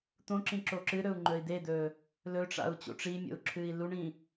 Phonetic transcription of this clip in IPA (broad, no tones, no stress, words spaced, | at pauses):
t̪õǁĩ ǁoǁɨɾɵu̯ ŋ͡ǃɵi̯d̪ed̪ɵ | lɵʈ͡ʂa̰u̯ t͡ɕo̰ʈ͡ʂimʲo̰u̯ ǁʰɨi̯luɳĩ